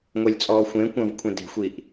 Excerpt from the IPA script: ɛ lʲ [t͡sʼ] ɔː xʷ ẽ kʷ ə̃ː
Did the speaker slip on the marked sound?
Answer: no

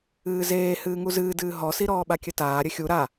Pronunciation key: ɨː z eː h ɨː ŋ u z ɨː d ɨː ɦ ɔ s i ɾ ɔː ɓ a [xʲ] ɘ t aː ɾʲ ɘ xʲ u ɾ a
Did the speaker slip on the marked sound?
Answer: yes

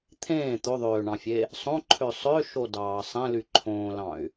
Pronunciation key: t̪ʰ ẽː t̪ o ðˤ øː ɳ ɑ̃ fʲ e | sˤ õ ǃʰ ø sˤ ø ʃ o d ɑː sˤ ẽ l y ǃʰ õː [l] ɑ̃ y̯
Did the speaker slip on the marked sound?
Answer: no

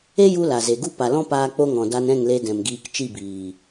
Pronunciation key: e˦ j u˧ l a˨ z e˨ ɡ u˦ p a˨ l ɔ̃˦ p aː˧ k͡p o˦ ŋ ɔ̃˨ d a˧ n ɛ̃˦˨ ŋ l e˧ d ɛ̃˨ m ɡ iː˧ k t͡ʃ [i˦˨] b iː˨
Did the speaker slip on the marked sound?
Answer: no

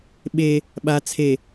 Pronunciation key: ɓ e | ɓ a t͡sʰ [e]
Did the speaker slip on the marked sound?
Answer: no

